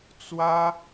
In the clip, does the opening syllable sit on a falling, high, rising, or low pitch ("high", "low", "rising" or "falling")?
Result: high